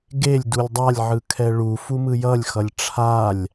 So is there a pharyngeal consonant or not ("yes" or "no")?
yes